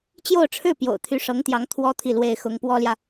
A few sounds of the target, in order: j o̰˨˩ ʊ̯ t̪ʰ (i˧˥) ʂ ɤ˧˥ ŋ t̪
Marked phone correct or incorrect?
incorrect